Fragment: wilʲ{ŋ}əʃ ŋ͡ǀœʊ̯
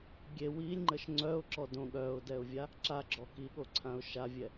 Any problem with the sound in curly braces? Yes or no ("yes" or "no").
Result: yes